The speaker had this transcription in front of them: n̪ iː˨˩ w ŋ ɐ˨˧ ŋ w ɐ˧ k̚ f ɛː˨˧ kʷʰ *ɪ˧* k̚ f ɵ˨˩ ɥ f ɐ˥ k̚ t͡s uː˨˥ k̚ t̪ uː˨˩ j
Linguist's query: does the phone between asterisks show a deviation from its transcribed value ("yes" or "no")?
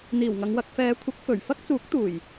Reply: yes